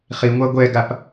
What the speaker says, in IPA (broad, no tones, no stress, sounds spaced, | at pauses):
χ i ŋʷ a ɡʷ ɛ ɡ a p